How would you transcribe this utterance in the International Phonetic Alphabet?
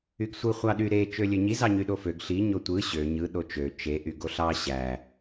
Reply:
yɡsʷɯ χʷɑɗy ɾe t͡ʃølʲøɲi zɑɲyɗoføɡ ɬi ɲotʷɯ ɕø ɲɯ ɗot͡ʃø t͡ʃe ʔyɡoɬɑ ɕæ

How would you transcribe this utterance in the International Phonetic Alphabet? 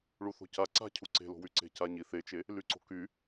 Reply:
ɭuθo̤ca ǀa̤cʰu ǀe̤lo̤wyǀe̤ caɲi θet͡ʃe | lyǀo̤ky

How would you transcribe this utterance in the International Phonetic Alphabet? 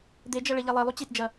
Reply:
d̪ed͡ʒɐ ɭeʎɛlˠɛlˠu t͡ɕitd͡ʒɐ

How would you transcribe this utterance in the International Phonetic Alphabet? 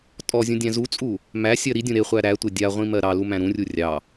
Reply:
tʼɔzʲũdʲæ̃ zut͡sʼu | mæsʲɜ ɾidʲũ ɾeχʷæ ɾætʷe dʲaʁʷĩmɜ ɾɑlumæ̃ ɾũrʲu rʲɑ

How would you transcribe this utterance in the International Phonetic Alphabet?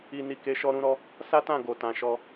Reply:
i˧ni˧ke˧ ʃɔ˦ɾũ˦ɾɔ˦ | sa˦tã˦˨ɡo˨ tã˨ ʃɔ˧

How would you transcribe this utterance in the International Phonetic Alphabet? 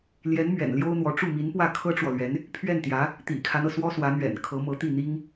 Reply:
ljɛ˧˥n mɥɛ̰˨˩nljo˥ʊ̯n̪wɔ˧˥ ʈ͡ʂu˥˩ mi˧˥npwä˥˩ kʰɤ˥ʈ͡ʂwɔ˨lɥɛ˧˥n | pʰɥɛ˥˩nt̪jä˧˥ | t̪ḭ˨˩kʰa˦nɤ˩ swɔ˥swä˧˥n̪ɥɛ̰˨˩n kʰɤ˧˥mɤ˧˥t̪i˥˩n̪i˥ŋ

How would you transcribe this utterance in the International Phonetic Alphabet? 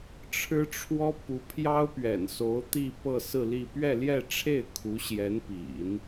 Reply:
ʈ͡ʂʰɻ̩˥ʈ͡ʂʰwɔ˥ pu˧˥pʰjɑ˥ʊ̯pɥɛ̰˨˩n so˧˥ʊ̯t̪i˥˧ pɤ˥˧sɹ̩˥˧li˥˧ pɥɛ˥˧ljɛ˥˧ʈ͡ʂʰe˥˩ɪ̯ kʰu˧˥ɕjɛ˧˥npḭ˨˩˦n

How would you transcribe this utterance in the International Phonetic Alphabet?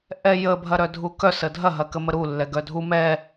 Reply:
ʔɛjə bʱɐɾœdʱukœ sədʱɐ ɦɐkəməɾu lːɛɡœdʱu mɛ

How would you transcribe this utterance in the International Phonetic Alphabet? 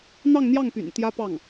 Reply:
n̪ɑ˥˧ŋn̪jɑ˥˩ŋpy̰˨˩n t̪jä˥pɑ˥˩ŋ

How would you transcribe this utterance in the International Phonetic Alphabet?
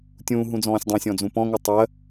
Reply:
tʲũːɦũd͡zɔ̃ːsʲ dˤũsʲɔ̃d͡zũ pɔ̃ŋɯ tˤɜ

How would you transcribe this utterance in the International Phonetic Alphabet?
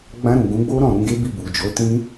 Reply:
ɡ͡bã˧ɾũ˨ ɡũ˨˦ɡ͡bo˦ ɾɔ̃˦˨ɾũ˧ɡe˦bi˦˨ bu˨d͡ʒo˨˦tĩ˦

